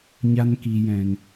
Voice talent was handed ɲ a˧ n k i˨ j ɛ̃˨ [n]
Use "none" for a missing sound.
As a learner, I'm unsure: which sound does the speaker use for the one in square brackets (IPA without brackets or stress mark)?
n